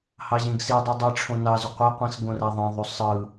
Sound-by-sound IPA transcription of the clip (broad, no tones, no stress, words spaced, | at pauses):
hɑʑẽɡsidˤu dˤeʈ͡ʂʰõ nɑzy qʷeqʷĩs ɡõræðˤẽðˤu sˤɯ